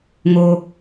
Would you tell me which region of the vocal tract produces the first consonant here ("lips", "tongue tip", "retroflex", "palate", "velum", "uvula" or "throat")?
velum